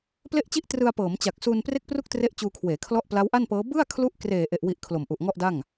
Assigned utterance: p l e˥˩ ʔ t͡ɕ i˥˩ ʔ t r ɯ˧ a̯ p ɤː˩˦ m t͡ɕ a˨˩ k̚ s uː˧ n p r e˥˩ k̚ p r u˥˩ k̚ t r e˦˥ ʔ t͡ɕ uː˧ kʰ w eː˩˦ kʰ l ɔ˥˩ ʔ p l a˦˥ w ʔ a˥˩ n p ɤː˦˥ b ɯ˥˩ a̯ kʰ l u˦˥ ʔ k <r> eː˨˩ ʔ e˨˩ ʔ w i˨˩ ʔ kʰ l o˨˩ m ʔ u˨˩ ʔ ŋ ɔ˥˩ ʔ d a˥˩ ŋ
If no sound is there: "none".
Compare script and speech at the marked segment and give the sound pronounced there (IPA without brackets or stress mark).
r